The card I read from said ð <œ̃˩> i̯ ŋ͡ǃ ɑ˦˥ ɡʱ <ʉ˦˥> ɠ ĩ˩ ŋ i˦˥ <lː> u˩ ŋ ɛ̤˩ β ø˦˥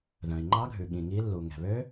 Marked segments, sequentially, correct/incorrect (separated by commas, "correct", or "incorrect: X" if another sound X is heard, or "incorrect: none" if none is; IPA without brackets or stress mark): correct, incorrect: ʉ˩, correct